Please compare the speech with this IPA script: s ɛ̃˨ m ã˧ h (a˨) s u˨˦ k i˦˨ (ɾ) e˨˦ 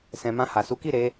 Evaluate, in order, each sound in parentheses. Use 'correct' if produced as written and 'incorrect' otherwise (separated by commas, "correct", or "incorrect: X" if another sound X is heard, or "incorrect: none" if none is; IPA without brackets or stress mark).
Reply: correct, correct